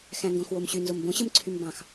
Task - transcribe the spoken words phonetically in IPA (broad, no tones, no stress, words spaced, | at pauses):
xæ̃ŋɡõxwomɕy nzombõ ɕɯmǀʰymbɑ̃x